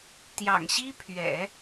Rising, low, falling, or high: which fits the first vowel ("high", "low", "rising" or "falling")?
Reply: low